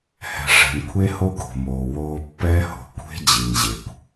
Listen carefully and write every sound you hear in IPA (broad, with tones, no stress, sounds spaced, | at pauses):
h ɛ̤˨ ʂ ɛ̤˨ n kʷʰ e˦ h o˦ ɡ o̤˨ m oː˨ w oː˦ pː ɛː˦ h o̤˨ kʷʰ e̤˦ d͡ʑ i˨ n ʑ e˨ kʷ